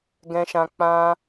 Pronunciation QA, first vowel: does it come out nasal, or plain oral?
nasal